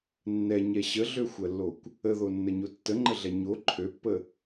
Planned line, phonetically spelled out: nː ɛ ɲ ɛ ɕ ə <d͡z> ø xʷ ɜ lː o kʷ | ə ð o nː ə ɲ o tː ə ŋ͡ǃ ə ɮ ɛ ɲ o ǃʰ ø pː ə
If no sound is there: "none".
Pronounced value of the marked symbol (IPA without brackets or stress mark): ɮ